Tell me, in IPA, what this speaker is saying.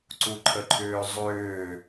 ǀuǃʰəǃʰʏːzˤʏː

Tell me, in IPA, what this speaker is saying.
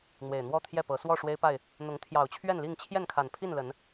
n̪we˨˩ɪ̯n̪wɔ˥˨t̪ʰjɛ˥˨pɤ˨˦ swɔ˥˨ʂwe˦ɪ̯pa˥˨ɪ̯ | n̪ʊ˨˦ŋ t̪ʰjɑ˨˩ʊ̯t͡ɕʰɥɛ˥˨nli˥˨ŋ t͡ɕʰjɛ˥˨nkʰa˨˩npʰi˥˨nlə˨˦n

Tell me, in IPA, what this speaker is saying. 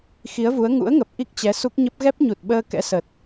xi˨˦ə̯vu˨˦ə̯ ŋṵ˧˥ə̯ŋə˨˩p̚ ʔi˦˥k̚t͡ɕɛ˨˦su˦˥k̚ɲə˦˥p̚ ɣɛ˦˥p̚ɲu˨˩t̚ɓəː˧ kɛ̰˧˥sə˨˩t̚

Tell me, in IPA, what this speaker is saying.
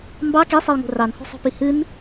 mbɑ kesˤɛjŋo̤ rɑnho̤sˤo̤pi hɨn

